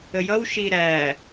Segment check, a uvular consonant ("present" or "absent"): absent